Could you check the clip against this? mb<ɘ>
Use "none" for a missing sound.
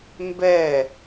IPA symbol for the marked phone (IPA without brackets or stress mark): ɛ